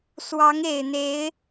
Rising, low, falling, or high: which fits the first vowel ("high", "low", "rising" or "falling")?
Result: rising